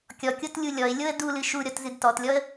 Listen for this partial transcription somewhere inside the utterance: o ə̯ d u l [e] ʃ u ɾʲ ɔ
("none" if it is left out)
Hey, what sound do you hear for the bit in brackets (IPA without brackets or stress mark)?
ɨ